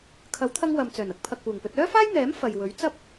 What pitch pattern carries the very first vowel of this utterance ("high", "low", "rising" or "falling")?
rising